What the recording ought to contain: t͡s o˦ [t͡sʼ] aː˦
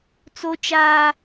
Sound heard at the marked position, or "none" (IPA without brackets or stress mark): t͡ʃ